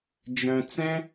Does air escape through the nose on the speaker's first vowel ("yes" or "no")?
yes